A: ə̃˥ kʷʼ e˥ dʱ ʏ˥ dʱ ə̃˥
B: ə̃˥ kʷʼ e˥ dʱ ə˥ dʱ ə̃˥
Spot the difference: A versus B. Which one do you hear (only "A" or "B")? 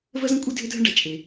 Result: A